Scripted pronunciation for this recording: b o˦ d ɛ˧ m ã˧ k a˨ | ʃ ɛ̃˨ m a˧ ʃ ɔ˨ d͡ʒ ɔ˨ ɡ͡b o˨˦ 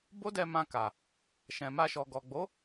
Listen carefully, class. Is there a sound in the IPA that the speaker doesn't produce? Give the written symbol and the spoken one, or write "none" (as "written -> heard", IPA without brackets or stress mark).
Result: d͡ʒ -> ɡ